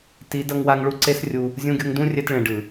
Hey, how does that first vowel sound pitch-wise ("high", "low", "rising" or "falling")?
rising